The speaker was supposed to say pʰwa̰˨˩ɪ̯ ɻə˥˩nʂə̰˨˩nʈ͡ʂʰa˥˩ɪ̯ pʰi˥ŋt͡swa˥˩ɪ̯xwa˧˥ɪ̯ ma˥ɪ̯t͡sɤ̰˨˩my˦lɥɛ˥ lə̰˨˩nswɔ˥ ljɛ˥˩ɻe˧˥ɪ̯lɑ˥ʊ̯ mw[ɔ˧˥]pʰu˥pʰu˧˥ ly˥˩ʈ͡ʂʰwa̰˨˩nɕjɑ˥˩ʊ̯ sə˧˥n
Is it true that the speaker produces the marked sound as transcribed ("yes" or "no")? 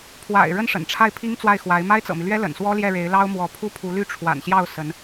yes